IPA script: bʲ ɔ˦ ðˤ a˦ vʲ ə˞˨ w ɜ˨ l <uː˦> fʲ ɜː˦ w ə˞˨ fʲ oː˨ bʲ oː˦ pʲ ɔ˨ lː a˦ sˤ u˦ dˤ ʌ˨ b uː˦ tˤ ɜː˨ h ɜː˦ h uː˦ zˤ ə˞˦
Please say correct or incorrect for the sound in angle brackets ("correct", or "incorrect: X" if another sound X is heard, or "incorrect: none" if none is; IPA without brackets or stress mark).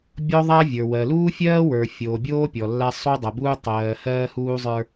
correct